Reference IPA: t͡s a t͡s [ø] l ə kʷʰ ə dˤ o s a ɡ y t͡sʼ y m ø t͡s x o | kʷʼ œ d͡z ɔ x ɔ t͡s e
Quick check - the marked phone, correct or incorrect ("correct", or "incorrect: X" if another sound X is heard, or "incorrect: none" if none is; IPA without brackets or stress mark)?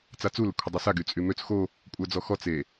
incorrect: u